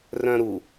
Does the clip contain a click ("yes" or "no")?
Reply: no